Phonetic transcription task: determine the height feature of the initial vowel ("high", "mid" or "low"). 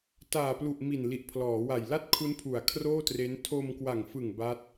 low